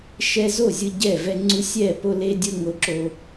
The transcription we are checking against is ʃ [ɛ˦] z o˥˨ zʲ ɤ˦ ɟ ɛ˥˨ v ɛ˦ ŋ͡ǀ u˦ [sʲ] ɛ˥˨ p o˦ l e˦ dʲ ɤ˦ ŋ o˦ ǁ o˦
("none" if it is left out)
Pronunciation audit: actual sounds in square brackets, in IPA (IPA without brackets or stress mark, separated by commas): ɛ˦, sʲ